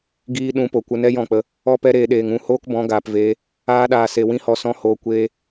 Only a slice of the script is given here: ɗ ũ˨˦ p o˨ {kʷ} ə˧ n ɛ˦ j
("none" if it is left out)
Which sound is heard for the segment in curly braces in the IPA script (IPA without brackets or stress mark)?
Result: kʷ